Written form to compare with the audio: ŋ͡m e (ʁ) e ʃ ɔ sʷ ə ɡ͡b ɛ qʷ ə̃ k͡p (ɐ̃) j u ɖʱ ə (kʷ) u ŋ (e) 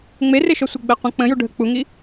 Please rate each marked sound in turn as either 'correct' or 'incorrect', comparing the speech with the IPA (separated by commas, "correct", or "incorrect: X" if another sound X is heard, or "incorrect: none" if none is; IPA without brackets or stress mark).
incorrect: r, incorrect: ə̃, incorrect: k͡p, incorrect: i